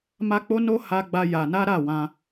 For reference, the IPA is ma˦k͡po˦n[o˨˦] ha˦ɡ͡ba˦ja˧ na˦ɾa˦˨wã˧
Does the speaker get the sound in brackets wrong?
yes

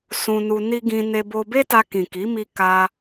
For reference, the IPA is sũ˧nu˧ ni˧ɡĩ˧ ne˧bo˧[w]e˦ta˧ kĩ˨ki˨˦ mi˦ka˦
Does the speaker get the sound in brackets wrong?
yes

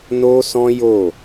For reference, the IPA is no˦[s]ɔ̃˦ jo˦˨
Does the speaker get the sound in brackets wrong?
no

